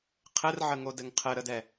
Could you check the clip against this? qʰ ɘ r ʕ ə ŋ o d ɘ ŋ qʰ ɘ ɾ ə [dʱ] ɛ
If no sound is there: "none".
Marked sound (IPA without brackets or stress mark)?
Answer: d